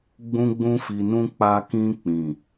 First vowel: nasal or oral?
nasal